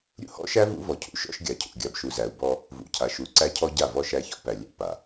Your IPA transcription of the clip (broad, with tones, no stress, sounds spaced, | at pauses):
ɾʲ ṵ˦ h ɔ̰˦ ʃ æ˦ v ṵ˦ v ɔ˨ cʰ ṵ˦ ʃ ɔ̰˦ ʃ ɡʲ a˨ cʰ ṵ˨ ɡʲ a˨ b ʃ u˨ z æ˨ u̯ b ɔ˦ | v ṵ˨ cʰ a˨ ʃ u˨ ǀ æ˦ cʰ ɔ˦ ɟ a˦˨ v ɔ˦ ʃ æ˦ ç ɔ̰˦ p æ˨ lʲ æ̰˦ p a˨